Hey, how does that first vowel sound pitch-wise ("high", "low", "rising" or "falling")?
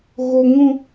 high